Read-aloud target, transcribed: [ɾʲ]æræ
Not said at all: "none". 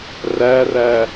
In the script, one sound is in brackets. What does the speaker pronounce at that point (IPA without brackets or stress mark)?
r